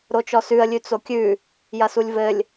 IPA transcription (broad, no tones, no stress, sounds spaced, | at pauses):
ɾ o t͡ʃ ɔ s ʉ ə̯ lʲ ʉ t͡s o kʲ ʉ | j ɐ s u lʲ v ɘ lʲ